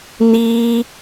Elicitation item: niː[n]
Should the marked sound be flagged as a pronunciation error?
yes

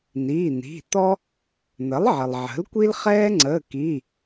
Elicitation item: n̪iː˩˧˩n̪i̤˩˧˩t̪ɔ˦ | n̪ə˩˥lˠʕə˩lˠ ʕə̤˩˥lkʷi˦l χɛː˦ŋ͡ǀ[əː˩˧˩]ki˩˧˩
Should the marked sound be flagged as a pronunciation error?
no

